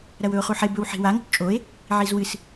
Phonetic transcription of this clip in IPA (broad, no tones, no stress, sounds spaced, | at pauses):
ɾ ɐ w ɵ o̯ χ u ħ e b ɵ w ħ i̤ w a ŋ o̤ p t͡ʃʼ o e̯ | ʕ i z w ɨ s